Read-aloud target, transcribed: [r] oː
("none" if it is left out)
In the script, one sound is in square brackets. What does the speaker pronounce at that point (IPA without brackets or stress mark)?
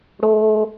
ɽ